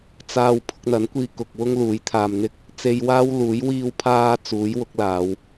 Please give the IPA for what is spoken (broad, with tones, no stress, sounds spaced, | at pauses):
t͡s aː˧ w pʰ ʊ˧ k̚ n̪ ɐ˨˥ n kʷ iː˧ k ʊ˨ k̚ w ʊ˥ ŋ l uː˨˥ j t̪ʰ aː˧ m n̪ ɪ˥ k̚ | t͡s e˧ j w aː˥ w l uː˨˥ j w iː˧ w pʰ aː˧ t͡s uː˨˥ j w ʊ˨˥ k̚ l aː˨˧ w